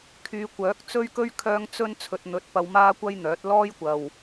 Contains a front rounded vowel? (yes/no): yes